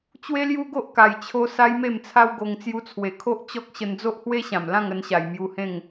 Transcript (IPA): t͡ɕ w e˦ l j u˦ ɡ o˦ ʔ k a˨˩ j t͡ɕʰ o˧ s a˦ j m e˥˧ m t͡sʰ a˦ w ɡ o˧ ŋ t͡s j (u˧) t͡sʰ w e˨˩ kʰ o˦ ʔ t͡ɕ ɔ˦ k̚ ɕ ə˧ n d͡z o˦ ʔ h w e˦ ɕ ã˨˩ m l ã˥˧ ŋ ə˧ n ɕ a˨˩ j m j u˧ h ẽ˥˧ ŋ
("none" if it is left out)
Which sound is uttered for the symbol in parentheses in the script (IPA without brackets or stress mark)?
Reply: u˧